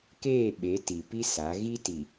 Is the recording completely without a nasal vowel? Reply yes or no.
yes